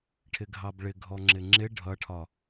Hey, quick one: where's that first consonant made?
retroflex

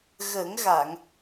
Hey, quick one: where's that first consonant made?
velum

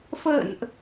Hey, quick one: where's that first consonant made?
lips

